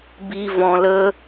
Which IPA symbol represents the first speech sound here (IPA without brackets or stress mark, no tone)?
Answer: b